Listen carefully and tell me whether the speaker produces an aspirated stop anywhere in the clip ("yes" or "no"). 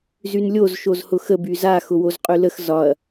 no